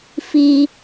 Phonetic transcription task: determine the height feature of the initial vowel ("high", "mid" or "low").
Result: high